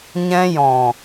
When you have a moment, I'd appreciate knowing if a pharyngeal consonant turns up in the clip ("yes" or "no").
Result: no